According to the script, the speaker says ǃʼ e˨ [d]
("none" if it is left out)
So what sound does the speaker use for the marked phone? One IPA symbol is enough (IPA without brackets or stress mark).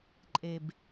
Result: b